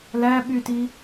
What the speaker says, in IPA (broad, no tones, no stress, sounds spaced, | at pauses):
l æ ɓ y t i